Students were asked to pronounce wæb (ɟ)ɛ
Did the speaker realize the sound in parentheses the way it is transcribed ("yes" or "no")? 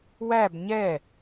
no